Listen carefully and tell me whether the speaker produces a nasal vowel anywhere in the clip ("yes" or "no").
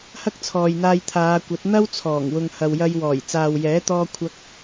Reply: no